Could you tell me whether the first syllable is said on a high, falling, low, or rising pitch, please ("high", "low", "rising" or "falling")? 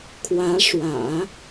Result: rising